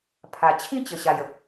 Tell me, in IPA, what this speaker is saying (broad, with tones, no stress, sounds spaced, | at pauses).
pʰ a˨˩ t͡ɕʰ ĩ˥˧ t͡ɕ ə˨˩ ɕ a˨˩ j ə˦ p̚